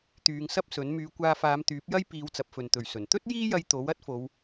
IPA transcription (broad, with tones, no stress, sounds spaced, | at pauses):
t̪ yː˨˧ ŋ s ɐ˥ p̚ s ɵ˨˥ n m yː˨˧ kʷ aː˧ f aː˨˧ m t̪ yː˨˥ p̚ j ɐ˥ j p iː˨˧ w t͡s ɐ˨ p̚ f ɵ˨ n t̪ ɵ˨˩ ɥ s ɵ˨˩ n t̪ ɵ˥ t̚ j iː˥ j ɐ˧ j t̪ o˨˥ w ɐ˥ t̚ f o˨˧ w